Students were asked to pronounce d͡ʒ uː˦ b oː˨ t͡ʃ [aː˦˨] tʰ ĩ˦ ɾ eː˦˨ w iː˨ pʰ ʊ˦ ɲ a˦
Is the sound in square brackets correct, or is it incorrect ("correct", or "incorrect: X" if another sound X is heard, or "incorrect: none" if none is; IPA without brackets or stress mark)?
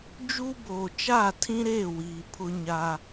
correct